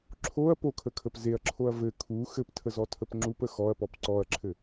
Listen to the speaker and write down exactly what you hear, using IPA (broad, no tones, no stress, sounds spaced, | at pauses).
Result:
ǁʰ o ɐ̯ p o kʰ ə kʰ ə p z e ɐ̯ ǁʰ o ɐ̯ v ɘ kʰ u x ɘ p tʰ ə z ɔ tʰ ə p ŋ͡ǁ u p ə x ɔ ɐ̯ p ɔ p ǀ ɔ ɐ̯ ǁʰ ɘ